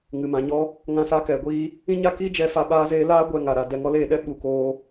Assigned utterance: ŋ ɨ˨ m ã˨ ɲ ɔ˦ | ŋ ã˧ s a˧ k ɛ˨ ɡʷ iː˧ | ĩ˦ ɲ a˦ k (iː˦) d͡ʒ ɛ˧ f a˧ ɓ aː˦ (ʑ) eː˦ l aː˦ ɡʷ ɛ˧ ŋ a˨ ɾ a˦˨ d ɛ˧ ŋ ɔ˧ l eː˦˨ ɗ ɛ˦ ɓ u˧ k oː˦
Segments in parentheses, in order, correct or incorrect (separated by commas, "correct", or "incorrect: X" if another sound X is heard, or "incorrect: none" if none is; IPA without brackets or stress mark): correct, incorrect: z